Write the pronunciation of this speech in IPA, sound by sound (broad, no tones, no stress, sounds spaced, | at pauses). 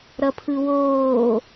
ɾ ʌ pʰ ɯ w oː